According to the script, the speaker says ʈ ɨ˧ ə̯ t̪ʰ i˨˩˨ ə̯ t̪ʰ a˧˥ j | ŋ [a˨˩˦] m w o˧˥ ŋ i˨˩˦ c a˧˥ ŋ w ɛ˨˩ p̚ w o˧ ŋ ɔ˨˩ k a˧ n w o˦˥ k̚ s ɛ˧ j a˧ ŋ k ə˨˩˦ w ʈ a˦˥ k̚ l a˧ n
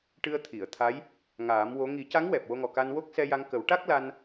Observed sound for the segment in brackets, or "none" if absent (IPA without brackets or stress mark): aː˨˩˦